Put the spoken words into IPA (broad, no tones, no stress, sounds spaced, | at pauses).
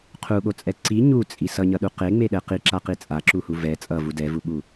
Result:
qʰ u ɠ o t͡sʼ ɛ ǀ i ɲ u t͡sʼ i s ʌ ɲ ʌ ɗ u q e ŋ͡m e ɗ ɛ q i ǁ a q i t͡sʼ a ǁ u h u v ɛ t͡sʼ ʌ v u d ɛ v u ɓ u